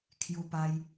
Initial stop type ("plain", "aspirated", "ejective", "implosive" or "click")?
aspirated